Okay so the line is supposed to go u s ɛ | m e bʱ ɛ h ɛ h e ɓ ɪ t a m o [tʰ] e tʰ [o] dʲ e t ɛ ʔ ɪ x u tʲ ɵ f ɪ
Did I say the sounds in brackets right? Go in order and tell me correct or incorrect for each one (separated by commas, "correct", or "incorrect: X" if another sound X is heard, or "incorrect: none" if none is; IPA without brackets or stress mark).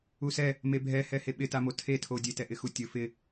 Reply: correct, correct